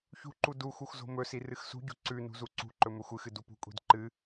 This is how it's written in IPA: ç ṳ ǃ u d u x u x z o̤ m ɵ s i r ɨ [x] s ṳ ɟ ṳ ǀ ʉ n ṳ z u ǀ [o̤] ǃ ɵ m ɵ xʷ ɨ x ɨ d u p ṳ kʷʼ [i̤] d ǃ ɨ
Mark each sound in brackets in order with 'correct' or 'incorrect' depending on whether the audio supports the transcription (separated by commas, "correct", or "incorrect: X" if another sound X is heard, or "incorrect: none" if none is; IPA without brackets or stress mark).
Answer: correct, incorrect: ṳ, correct